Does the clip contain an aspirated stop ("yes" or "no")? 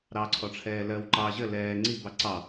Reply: yes